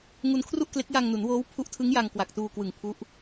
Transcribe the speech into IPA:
ŋu˧nkʰru˥˩ʔkle˦˥k̚ ja˧ŋnu˩˦nwoː˦˥w pʰu˦˥ʔtʰɯ˦˥ŋ ja˧ŋkwa˨˩k̚tuː˧kwɯ˨˩ŋ pʰu˦˥ʔ

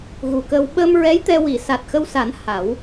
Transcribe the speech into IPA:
ɣu˨˩kə˧w ɓəː˧mɹɛ˧˥j t̪ɛ˧wi˨˩˨ sa˨˩t̚xə˧wsa˨˩˦n ha˨˩˦w

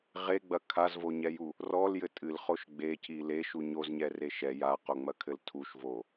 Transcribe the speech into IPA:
ʁeɡ͡bɐ kʰazvoɲɛju | rɔljɘ tʼɨlχoʃ ɡ͡beci leʃu ɲozɲɛre ʃɛ jaqoŋ͡mɐkʰɘl tʰuʃvo

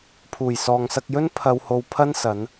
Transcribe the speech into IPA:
pʰuː˨˩jsɔː˨ŋsɐ˧k̚jɵ˥n pʰɐ˧who˧wpʰɐ˥n sɐ˨˧n

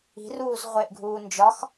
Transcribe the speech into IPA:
i̤ruːz ʁʷeʔɡʱuː nd͡ʒɒx

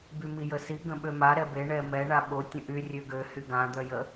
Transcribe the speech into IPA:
bymijəsi ɡə̃ɓøma ɾɛbe ɳɛmɛ ɳaɓo tʲə̃ʔy rʲøɡø hyɡã d̪œjə

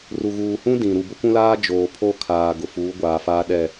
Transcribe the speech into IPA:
ru˨ ɣuː˨hũ˦ dĩ˨ ɾu˨bʊ˦kʷũ˦laː˦ d͡ʒoː˨pʰo˦kʰaː˨ ɡʊ˨fuː˨˦ɡʷaː˨faː˦ ɗɛ˦˨

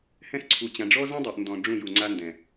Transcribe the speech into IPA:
hɛ̃˦sǀʰu˨t͡ɕã˨ ɖ͡ʐɔ˦zɛ̃˦dˤɛ˨ʔ ndɔ̃˨ ɖ͡ʐũ˦˨ju˨ŋ͡ǀa˦ndɛ̃˨

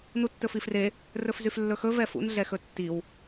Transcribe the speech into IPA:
nutːɵfifre | rɵfzyflːɵxɵ vɛfṵn ɮɛxɵtːiw

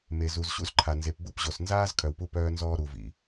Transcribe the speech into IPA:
me˨zu˨zɕṵ˦zǃʰa˨ nze˨pbu˦˨pʑo˨s nzaː˦z kʰœ˨wpu˦ pœː˦nzɔː˦ ɾu˨vḭ˨

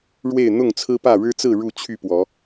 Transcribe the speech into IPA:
ɻwe˥˨ɪ̯ n̪ʊ˥˨ŋt͡sʰɹ̩˦pä˥˨ ɻɻ̩˦t͡sɹ̩˥˨ ɻu˥˨t͡ɕʰy˥˨pwɔ˨˦

